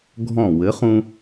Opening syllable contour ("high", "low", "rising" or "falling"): falling